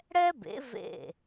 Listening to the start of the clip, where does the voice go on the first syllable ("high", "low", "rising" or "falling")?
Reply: high